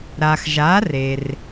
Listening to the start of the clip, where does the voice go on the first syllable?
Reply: low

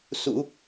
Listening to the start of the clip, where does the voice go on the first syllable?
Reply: low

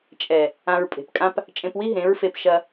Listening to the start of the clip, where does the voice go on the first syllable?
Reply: low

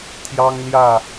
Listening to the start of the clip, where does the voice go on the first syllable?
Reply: high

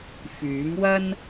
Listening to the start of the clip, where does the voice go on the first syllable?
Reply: rising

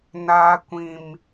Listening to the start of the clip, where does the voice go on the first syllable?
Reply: high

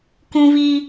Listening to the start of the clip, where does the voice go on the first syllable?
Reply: high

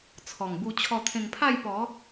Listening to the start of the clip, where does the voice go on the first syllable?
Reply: low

